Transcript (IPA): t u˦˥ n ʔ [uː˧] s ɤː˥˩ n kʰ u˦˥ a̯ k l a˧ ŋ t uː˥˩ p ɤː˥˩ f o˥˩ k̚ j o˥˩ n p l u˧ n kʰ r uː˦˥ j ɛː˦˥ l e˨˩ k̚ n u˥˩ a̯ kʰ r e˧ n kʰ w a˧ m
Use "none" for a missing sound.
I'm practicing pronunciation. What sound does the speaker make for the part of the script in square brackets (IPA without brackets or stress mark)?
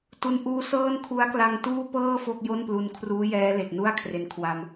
uː˦˥